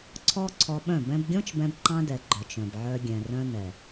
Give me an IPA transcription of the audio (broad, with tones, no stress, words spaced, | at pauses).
ǀʰɔ˦ ǀʰɔ˧ɓœ̃˦˨ bɛ̃˧bɡʲɔ̃˦t͡ʃbɛ̃˧b ǃɑ̃˦dɛ˨ ɡ͡ǃœ˨t͡ʃ œ̃˨bʕœ˧ ɡʲɛ̃˨rœ̃˧ nɛ˨